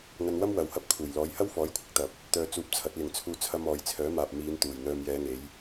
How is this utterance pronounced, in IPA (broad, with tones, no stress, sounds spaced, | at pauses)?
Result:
ŋ ɐ˧ n w ɐ˥ m w ɐ˨˩ w h ɐ˨˥ p̚ kʰ uː˨˩ j l ɔː˨˥ j h ɐ˥ w f ɔː˨˥ j kʷʰ ɪ˧ k̚ t̪ ɐ˨ p̚ | t̪ œː˧ t͡s uː˧ p̚ t͡sʰ ɐ˨˥ t̚ l ɪ˨ ŋ t͡sʰ uː˧ t͡sʰ ɐ˧ m ɔː˨˧ j t͡sʰ œː˨˥ m aː˨ p̚ m iː˨˧ n t̪ uː˨˩ j n̪ œː˨ m j ɛː˨˧ ŋ e˨˧ j